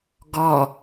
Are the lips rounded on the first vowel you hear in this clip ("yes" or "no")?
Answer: yes